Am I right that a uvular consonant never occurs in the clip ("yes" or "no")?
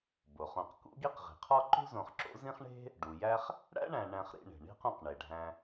no